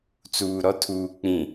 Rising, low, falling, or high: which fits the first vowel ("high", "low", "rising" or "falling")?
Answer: low